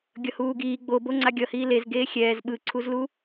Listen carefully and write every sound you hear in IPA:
ɡʲʌhuːɡiː ɡ͡bobo ŋ͡ǀaɡʲʌhiː lez ɡeːxʲɛːz ɓɯǀʰuzlu

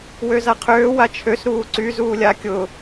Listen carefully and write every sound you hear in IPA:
wøzaqʰøː wat͡ʃʰøs ɾuːǀy zuːlʲa kʲʊ

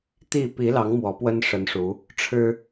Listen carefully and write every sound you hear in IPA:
t̪i˥˨ pi˨˦lɑ˨˦ŋ mwɔ˨˦pwə˦nʂə˨˦nʂu˨˦ | ʈ͡ʂʰɻ̩˦

